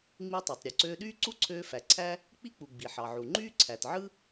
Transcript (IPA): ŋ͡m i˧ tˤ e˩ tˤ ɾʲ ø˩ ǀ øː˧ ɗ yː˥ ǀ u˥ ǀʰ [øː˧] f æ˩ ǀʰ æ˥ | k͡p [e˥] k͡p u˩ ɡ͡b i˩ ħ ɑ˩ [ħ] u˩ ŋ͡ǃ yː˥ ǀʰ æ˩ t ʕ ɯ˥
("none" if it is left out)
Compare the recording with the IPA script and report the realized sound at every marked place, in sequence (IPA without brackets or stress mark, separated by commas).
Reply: øː˧, i˥, ʕ